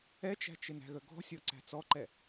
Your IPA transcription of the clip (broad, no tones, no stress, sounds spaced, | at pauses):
ɛ t͡ʃ æ̤ t͡ʃ ɪ n æ̤ ɣ ə ɡ ɔ̤ sʲ ɔ ǀ æ̤ t͡s ɔ ǃ ɛ